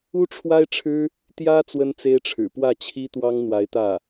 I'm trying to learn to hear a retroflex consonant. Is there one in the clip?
yes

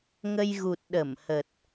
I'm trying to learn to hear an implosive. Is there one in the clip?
yes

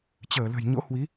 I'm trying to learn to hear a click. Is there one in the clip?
no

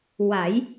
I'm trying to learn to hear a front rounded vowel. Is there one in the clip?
no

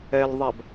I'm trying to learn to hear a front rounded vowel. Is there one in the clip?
no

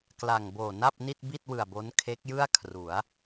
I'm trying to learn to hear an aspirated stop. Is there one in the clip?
yes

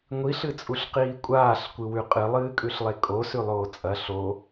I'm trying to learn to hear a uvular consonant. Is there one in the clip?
yes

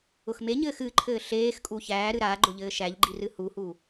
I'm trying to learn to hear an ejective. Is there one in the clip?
yes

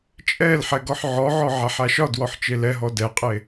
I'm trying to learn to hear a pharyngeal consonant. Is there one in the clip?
yes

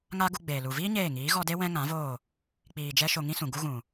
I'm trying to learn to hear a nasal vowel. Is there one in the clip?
yes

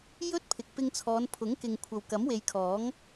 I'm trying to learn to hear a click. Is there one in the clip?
no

